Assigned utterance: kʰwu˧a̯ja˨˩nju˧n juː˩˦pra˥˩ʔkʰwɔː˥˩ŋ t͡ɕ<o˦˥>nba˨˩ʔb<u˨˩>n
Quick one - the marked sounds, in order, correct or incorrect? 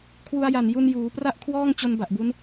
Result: incorrect: o˧, incorrect: u˦˥

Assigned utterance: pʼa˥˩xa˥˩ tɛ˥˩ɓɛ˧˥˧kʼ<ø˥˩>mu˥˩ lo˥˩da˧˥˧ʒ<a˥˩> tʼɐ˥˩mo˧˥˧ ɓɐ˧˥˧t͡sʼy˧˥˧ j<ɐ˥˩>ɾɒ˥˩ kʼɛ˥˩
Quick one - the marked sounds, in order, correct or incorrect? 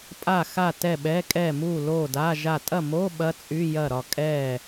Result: incorrect: ɛ˥˩, correct, correct

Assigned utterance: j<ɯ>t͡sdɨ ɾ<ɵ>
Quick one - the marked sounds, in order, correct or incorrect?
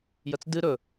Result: incorrect: ə, correct

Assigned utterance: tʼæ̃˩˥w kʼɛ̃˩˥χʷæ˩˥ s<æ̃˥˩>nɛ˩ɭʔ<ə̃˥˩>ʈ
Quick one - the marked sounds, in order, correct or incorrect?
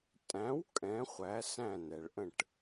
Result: correct, correct

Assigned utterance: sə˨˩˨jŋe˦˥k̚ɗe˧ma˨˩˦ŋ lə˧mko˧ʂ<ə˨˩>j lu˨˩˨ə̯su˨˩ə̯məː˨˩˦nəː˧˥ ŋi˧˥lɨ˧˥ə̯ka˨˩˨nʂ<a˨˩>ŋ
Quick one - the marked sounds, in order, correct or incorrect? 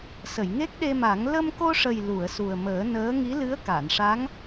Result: correct, incorrect: a˧˥

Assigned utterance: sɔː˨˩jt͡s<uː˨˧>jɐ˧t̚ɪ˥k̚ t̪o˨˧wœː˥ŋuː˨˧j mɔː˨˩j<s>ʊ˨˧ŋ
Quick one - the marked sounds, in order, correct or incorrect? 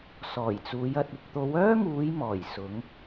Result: correct, correct

